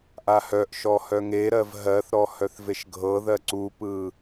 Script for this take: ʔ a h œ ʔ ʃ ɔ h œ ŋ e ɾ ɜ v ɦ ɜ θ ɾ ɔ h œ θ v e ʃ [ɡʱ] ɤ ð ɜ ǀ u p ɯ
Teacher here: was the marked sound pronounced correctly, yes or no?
yes